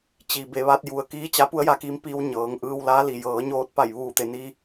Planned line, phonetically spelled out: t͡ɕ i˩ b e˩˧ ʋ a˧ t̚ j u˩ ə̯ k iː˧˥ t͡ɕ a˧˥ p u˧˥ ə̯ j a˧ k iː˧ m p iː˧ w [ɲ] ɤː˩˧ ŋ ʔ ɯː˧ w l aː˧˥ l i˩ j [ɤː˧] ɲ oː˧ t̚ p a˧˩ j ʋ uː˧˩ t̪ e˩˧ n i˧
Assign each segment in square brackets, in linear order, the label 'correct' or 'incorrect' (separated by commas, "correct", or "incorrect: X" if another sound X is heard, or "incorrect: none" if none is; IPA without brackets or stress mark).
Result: correct, incorrect: ɤː˩˧